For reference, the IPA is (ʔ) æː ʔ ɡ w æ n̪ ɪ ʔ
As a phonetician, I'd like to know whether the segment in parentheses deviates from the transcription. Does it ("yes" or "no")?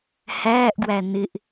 yes